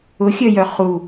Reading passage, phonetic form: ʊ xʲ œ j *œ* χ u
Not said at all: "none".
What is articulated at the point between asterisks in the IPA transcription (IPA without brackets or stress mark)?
œ